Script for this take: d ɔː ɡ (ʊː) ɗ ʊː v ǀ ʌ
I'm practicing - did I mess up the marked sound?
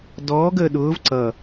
yes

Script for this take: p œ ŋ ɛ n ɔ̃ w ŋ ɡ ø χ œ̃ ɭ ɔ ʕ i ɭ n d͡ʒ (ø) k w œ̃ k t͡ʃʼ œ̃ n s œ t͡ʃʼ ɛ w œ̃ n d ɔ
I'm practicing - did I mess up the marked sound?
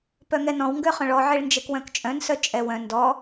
yes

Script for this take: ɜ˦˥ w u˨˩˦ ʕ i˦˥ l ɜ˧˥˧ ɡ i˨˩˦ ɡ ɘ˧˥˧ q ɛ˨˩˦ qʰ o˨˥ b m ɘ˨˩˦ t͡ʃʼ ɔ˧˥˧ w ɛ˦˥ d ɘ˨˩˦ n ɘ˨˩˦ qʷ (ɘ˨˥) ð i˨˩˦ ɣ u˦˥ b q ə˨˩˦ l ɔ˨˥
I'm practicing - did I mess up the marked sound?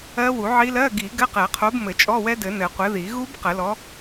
no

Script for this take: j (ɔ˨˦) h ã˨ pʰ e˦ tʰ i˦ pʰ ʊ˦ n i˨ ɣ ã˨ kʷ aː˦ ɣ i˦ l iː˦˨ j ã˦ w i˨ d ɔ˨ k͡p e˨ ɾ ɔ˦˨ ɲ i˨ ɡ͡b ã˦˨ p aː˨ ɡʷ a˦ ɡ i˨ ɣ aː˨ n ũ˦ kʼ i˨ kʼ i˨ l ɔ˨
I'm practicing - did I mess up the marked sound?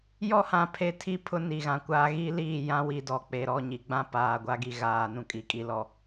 yes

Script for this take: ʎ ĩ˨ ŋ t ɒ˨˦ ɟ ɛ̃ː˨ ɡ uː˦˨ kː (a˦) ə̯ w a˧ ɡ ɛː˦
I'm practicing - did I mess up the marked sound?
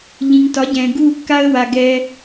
no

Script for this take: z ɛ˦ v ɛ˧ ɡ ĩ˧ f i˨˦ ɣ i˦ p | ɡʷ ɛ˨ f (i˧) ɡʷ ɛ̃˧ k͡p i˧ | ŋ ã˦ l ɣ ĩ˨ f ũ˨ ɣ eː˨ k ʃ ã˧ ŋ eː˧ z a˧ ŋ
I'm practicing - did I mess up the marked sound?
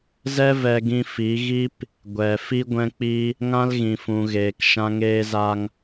no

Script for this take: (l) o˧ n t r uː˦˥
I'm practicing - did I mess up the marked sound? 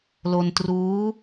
no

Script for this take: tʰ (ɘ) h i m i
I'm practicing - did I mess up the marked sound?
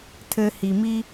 no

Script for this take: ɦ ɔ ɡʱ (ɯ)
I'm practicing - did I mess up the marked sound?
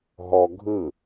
no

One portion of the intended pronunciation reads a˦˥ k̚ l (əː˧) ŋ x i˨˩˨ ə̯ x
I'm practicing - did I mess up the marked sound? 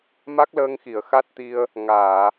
no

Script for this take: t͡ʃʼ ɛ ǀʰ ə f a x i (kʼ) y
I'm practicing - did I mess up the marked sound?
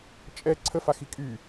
no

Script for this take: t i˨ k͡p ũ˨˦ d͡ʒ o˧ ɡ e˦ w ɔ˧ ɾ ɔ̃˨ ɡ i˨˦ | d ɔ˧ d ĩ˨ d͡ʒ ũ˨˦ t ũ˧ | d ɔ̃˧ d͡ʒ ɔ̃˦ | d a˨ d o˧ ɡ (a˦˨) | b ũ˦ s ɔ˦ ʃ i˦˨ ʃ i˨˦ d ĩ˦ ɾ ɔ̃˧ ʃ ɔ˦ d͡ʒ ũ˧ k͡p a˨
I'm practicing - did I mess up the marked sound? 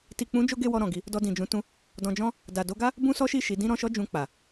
yes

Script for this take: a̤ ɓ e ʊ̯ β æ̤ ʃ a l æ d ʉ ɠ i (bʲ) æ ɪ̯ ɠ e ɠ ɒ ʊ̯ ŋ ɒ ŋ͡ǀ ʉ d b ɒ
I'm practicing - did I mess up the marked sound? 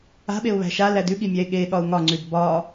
yes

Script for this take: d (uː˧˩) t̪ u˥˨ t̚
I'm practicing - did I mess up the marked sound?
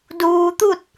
yes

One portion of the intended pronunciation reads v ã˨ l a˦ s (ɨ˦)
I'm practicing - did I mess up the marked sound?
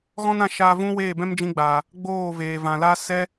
yes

